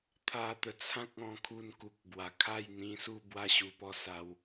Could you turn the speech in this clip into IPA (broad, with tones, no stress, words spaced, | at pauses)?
t̪ʰa˧t̪ə˨˩ t͡sʰã˦k̚ɔ̃˧kʰu˧n ku˨k̚bwa˨˩kʰa˥˧j n̪ĩ˧su˥˧ bwa˧ɕu˨˩pɔ˧ sa˧w